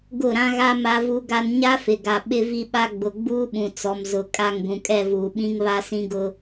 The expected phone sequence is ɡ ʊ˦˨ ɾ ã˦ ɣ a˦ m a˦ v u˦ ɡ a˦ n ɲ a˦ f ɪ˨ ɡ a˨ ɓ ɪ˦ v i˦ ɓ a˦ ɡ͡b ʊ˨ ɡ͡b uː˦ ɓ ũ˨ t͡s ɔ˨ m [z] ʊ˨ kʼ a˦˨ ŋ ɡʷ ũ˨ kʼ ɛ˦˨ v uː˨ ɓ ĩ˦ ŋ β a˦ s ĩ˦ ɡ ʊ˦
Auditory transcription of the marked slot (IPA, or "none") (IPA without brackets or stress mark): z